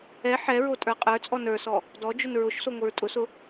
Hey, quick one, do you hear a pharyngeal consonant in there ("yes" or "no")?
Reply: yes